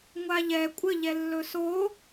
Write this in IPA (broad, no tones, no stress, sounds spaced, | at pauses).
ŋʷ a ʎ ɛ kʷʼ ə ʎ ɛ lː ɵ s o